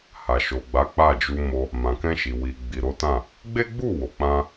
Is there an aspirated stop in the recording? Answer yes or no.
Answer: no